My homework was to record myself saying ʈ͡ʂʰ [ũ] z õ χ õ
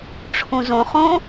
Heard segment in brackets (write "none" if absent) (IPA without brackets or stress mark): ũ